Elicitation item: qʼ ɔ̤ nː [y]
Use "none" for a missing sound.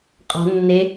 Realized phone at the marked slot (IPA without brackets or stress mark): e